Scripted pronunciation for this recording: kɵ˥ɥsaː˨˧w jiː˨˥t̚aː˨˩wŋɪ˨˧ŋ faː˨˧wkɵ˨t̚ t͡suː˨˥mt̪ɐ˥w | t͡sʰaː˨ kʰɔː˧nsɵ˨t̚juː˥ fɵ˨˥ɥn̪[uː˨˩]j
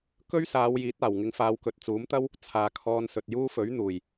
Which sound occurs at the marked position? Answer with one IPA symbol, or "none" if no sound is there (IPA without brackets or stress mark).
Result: uː˨˩